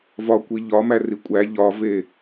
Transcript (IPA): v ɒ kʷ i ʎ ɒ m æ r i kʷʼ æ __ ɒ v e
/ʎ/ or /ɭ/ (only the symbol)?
ʎ